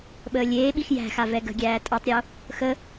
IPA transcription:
ɓ əː lʲ eː ɓ i x j æ̤ x a v ɛ ɡ ə̤ ɡʲ æː tʼ ɤ tˤ ɾʲ o | x ə

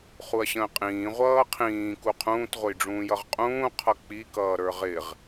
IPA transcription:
χ u ɐ̯ ɕ ə̃ː qʼ ĩː ʁʷ ʌː qʰ ĩː k u qʰ ũː t ʁʷ ə j ɖ͡ʐ ũː j ʌ ʁ qʼ ũː qʰ ʌ k͡p i k ʌː ɾ ə˞ ʁ ɪ ʁ

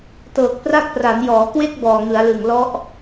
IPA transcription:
t ɤː˨˩ k̚ p r a˥˩ k̚ p r a˩˦ n j ɔː˩˦ k w e˥˩ k̚ b ɔː˨˩ ŋ ɯ˩˦ a̯ l ɯ˨˩ ŋ l ɔ˦˥ ʔ

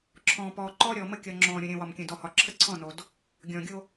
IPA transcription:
ǁʰ ɔ̃ː˨ p ɔː˨ ǃ ɔː˦ ɾʲ ɔː˨ m ə˦ kʲ ɔ˨ ŋ͡ǁ ɔ̃ː˨ ɾʲ õ˨ ɾʲ ə̃ː˨ w ɒ˨ m kʲ ə̃˨ d ɔ˨ h ɒ˨ ǁʰ ə˦ ǀʰ ɔ̃˦˨ n o˨ d | ɡʲ ɔ̃ː˨ ɡʲ o˦

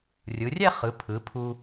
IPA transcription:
rʲ ɯ˩˧ rʲ ɛ˥˧ χ ɯ˩˧ pʰ ɯ˩˧ pʰ u˧

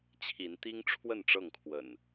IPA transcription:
t͡ɕʰ i˨˦ n t̪ i˦ ŋ ʈ͡ʂʰ w ə˥˨ n ʈ͡ʂ ɤ˥˨ ŋ kʰ w ə̰˨˩ n

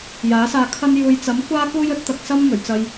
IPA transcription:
j aː˨˥ s aː˧ kʰ ɐ˧ n j uː˨ j t͡s ɐ˨˥ m kʷ aː˥ k uː˥ j ɵ˥ t̚ t̪ ɐ˨ k̚ s ɐ˥ m ŋ ɵ˨˩ ɥ t͡s ɐ˧ j

